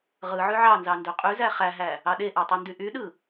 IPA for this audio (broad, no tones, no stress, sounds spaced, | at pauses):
ʁ ɯ ʕ y ʕ ɑ n z ɑ n d ø qʼ y z æ χ æ ɦ æ | ɑ ɗ e ʔ æ tˤ o n d y ʔ y ɗ ɯ